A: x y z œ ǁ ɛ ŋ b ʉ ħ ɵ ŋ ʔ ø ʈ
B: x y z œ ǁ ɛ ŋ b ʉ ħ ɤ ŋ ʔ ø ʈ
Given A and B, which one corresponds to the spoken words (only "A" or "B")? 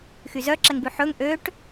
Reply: A